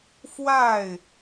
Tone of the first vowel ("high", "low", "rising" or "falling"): falling